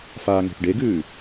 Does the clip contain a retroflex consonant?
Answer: yes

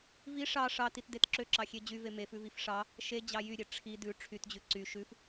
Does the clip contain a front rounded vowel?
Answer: yes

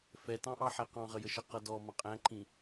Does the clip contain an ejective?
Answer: yes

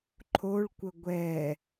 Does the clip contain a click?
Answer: yes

